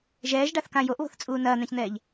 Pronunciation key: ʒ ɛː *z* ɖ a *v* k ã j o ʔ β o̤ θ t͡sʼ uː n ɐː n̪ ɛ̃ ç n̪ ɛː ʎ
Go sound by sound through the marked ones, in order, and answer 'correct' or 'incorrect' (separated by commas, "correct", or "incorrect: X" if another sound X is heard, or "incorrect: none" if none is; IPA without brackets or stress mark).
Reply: incorrect: ʒ, incorrect: θ